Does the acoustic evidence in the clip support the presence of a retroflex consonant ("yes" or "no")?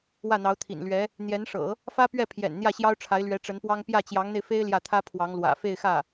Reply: yes